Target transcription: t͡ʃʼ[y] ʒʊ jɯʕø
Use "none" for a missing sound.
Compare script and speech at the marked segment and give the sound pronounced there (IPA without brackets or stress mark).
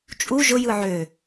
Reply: u